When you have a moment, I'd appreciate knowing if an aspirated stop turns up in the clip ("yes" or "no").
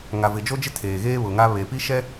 yes